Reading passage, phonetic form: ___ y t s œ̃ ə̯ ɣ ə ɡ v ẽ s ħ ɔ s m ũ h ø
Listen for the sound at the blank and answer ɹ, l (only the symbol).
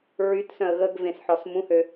ɹ